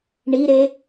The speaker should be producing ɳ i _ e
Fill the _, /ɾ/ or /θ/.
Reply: ɾ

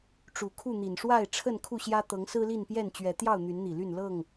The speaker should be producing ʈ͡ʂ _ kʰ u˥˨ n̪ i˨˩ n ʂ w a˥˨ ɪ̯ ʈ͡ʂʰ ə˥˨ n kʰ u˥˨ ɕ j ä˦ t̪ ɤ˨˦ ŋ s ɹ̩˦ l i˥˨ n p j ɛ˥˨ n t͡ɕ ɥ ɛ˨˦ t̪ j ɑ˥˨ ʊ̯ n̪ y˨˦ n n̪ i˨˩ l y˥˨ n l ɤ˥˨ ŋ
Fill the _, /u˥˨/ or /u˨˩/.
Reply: u˨˩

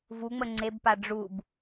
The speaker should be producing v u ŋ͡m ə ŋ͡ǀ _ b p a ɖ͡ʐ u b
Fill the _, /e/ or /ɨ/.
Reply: e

